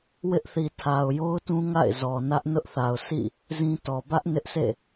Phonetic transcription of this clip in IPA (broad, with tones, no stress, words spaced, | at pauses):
wɪ˦ʔθi˨ tʰa˨ʊ̯jo˦ʊ̯tũ˦ ŋa̰˦˨ɪ̯ zɔ˨nä˦ʔ nʊ˦ʔθa˨ʊ̯ sḭ˦˨ | zĩ˦tɔ˨ bä˦ʔ nɪ˦ʔsʰḛ˦˨